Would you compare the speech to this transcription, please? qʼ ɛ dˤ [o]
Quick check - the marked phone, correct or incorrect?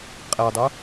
correct